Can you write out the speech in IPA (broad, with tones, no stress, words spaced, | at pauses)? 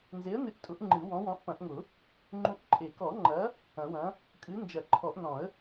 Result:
nze˨˥ə̯nɨ˨˥ʔtʼʊ˨˩˦ʔ ŋ͡ǃɨ˨˩˦wɔ̃˨˥wɔ̃˨˥ʔ pɐ̃˨˩˦ʔŋʊ˨˩˦ | ŋ͡ǃũ˨˥ʔǃʼe˨˩˦kɔ˨˩˦ ŋ͡ǃɐ˨˥ | ɐ̃˨˩˦wɐ̃˨˥ | kʼɨ˨˥nd͡ʒɐ˨˩˦ǃʰɔ˨˩˦ʔnɔ̃˨˩˦ə̯